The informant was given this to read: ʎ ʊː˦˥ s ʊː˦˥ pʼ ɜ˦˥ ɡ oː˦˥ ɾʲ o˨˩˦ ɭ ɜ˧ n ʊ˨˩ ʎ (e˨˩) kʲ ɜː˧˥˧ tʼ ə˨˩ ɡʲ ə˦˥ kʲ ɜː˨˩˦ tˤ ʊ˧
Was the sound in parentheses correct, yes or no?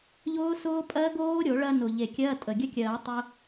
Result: yes